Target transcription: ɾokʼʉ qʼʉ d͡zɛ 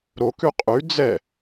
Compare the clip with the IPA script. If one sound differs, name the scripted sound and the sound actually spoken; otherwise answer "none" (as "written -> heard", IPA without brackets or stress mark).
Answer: kʼ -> k